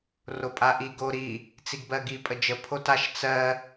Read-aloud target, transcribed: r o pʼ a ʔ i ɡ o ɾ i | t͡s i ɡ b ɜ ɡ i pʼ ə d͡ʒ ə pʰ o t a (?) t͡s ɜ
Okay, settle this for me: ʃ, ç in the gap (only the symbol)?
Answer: ʃ